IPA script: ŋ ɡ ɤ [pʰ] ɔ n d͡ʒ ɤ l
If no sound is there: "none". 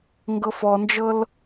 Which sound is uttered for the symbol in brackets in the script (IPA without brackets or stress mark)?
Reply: f